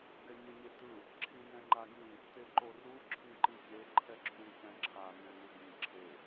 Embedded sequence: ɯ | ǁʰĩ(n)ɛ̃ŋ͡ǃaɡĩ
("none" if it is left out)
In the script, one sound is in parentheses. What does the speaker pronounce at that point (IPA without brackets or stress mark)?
n